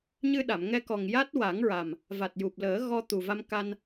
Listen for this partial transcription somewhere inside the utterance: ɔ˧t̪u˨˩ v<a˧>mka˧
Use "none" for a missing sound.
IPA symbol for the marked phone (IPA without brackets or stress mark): a˧